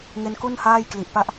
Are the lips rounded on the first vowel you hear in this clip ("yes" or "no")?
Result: no